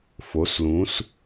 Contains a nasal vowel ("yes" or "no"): yes